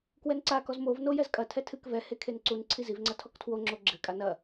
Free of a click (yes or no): no